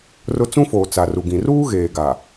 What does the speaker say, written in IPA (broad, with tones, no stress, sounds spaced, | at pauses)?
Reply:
r ʊ˦ t͡s ũ˦ f oː˨ t͡s a˨ r u˨ ɡ ĩ˨ r uː˦ ɣ eː˨ ɡ a˨